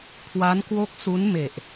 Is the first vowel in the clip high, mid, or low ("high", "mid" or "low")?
low